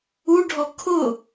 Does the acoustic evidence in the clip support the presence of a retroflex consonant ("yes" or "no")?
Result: yes